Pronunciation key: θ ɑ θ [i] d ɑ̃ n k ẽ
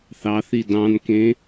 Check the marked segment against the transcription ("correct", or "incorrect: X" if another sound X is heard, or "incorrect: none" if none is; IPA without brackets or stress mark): correct